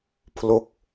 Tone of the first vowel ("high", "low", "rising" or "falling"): falling